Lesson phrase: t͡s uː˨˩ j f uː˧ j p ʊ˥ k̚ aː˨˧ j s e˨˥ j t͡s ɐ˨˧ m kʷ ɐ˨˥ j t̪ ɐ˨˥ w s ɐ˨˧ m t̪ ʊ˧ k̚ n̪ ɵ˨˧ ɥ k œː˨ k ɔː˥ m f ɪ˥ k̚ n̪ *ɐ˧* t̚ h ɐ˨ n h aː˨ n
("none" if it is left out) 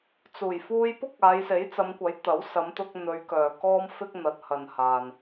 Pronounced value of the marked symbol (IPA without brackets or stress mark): ɐ˨˥